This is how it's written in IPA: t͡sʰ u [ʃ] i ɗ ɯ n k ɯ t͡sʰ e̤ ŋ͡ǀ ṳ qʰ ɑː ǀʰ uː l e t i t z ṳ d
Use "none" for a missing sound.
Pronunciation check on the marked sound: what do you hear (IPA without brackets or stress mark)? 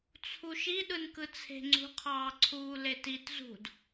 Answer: ʃ